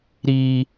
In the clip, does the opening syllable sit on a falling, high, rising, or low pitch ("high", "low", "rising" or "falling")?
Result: high